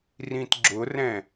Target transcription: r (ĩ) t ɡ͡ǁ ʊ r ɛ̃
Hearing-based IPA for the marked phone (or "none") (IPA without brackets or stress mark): ĩ